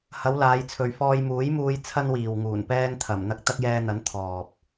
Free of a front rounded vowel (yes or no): yes